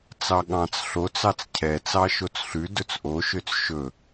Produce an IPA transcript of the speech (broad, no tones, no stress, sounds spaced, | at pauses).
t͡s ɑ ɠ ɑ̃ t͡s ɬ o t͡s ɑ t͡s cʰ ɛ t͡s ɑ ʃ o t͡s ɬ ʉ d ɵ t͡s ʔ o ʃ ø t͡s ʃ ɵ